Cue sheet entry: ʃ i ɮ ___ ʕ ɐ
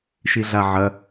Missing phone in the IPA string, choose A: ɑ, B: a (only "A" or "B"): B